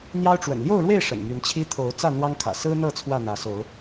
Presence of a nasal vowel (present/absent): absent